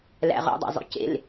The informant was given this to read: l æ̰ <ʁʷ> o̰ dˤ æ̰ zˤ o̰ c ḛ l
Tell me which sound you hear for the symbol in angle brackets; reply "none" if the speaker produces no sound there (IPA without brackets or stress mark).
ʁ